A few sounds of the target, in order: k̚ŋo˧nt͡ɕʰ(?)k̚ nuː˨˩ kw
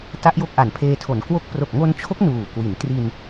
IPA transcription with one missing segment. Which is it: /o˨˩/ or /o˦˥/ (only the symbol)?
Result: o˦˥